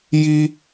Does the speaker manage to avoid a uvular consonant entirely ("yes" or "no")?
yes